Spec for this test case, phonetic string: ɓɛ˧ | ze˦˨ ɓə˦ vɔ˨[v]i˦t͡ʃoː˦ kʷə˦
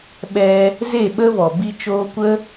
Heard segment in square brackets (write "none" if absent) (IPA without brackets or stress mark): b